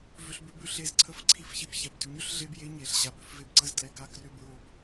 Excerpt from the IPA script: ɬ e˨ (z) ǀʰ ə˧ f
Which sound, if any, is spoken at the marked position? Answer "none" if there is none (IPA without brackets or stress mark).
z